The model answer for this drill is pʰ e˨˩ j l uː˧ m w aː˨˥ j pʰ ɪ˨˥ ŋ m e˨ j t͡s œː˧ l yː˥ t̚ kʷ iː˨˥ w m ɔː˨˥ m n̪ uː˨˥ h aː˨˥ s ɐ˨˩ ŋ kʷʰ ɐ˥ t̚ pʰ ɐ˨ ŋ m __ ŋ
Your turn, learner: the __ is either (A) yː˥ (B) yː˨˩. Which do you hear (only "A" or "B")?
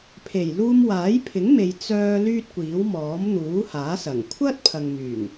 B